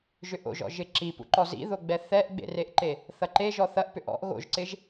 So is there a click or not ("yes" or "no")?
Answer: yes